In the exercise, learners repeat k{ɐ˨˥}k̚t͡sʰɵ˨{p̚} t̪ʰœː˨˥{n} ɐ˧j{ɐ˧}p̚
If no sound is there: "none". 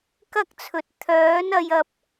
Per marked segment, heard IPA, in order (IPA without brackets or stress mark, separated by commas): ɐ˥, t̚, n, ɐ˧